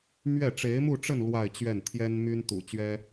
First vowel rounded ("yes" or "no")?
no